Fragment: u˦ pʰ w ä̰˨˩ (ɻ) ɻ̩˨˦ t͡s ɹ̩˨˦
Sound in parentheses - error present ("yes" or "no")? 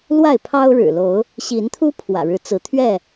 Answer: no